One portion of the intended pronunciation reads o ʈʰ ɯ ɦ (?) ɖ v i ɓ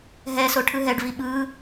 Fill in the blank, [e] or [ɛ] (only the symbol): ɛ